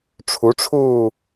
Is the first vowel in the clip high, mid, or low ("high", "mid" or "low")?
high